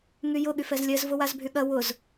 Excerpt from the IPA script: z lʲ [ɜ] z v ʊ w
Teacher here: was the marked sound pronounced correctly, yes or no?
yes